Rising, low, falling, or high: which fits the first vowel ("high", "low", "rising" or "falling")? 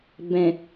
low